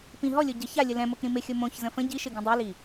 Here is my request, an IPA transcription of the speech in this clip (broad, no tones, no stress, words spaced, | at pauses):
pĩ ɦɔlʲo ɟə çalʲə lɛ̃ mokɾĩmɪxʲo mõçzə̃ fə̃ ɟiʃɪ ɡĩdˤili